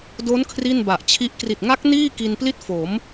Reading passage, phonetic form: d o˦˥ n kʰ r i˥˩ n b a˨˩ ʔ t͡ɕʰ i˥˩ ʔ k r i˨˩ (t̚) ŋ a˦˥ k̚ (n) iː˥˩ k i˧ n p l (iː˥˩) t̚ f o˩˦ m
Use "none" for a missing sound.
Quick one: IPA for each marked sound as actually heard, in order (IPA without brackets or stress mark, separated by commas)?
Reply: t̚, n, i˥˩